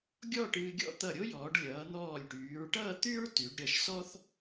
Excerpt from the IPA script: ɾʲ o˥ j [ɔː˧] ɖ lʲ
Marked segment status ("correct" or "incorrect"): incorrect